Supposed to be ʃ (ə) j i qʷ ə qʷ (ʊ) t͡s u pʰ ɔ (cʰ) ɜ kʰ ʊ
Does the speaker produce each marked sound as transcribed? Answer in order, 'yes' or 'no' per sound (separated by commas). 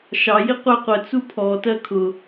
no, no, no